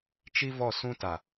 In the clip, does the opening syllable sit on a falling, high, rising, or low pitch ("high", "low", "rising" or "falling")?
high